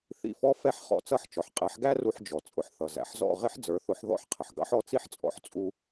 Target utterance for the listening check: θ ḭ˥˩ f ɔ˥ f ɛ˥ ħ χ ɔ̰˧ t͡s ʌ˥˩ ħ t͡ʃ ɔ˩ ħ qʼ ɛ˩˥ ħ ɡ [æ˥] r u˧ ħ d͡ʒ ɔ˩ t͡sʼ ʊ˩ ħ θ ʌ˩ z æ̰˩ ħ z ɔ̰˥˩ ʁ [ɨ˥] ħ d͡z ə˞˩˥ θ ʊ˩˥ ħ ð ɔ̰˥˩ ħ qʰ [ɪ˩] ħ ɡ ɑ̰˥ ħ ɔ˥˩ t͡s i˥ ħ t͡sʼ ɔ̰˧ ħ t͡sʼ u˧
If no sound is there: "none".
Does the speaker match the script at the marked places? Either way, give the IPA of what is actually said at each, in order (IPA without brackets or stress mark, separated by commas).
æ˥, ɪ˥, ə˩